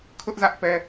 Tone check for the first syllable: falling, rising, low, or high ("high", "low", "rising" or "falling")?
high